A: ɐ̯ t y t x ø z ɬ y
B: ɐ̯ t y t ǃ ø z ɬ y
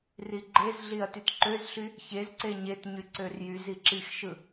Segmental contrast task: B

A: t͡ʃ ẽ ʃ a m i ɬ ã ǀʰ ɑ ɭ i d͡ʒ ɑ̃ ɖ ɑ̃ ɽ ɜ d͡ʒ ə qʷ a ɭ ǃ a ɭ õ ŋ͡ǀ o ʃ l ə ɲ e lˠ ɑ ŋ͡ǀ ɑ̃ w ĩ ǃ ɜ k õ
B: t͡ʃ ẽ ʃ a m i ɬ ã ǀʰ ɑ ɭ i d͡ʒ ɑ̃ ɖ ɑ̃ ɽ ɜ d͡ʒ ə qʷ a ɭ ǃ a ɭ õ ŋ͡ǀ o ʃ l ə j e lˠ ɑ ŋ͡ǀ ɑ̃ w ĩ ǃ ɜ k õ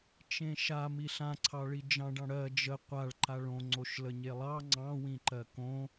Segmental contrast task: A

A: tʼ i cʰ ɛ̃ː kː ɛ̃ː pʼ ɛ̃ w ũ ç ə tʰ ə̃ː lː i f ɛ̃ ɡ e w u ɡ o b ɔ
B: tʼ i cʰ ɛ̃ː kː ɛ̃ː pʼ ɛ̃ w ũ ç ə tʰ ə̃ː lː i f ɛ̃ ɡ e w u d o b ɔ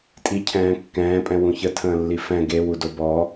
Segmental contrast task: B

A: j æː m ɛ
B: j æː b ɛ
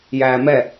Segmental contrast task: A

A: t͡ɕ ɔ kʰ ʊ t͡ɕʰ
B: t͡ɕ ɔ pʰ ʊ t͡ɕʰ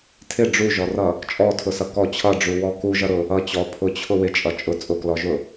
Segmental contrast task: B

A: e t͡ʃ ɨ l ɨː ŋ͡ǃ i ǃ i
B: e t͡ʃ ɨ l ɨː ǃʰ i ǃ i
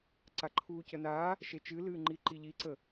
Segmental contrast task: A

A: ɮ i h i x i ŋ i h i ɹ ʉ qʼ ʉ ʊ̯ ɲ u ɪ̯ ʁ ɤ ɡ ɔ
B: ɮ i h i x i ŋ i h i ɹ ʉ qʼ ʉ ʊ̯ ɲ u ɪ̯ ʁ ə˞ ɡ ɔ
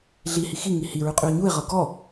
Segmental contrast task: A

